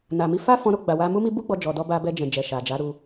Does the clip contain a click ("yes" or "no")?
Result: no